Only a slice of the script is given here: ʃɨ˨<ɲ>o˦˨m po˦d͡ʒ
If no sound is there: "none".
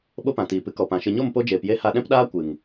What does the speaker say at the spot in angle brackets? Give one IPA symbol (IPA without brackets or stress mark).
ɲ